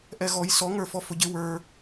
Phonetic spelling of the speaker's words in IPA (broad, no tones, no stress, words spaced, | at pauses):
ʔɛɣɔj sɔŋə˞fɔ fʊɟɪ wə˞